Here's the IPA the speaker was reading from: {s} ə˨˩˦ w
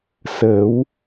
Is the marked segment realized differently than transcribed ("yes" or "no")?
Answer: no